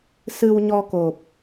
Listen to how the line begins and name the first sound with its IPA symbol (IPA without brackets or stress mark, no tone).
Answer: s